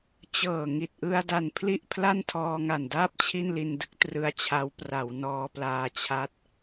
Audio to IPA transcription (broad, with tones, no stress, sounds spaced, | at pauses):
t͡ɕ ɤː˨˩ ŋ i˨˩ t̚ ʔ ɯ˧ a̯ d a˨˩ n pʰ l i˥˩ ʔ pʰ l a˥˩ n tʰ ɔː˧ ŋ a˨˩ n d aː˥˩ p̚ t͡ɕʰ i˥˩ n l i˧ n d ɯ˦˥ k̚ t r ɯ˦˥ a̯ t͡ɕʰ a˦˥ w p r a˩˦ w n ɔː˧ p l aː˧ t͡ɕʰ a˦˥ t̚